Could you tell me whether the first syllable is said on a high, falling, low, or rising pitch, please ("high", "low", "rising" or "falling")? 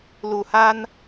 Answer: low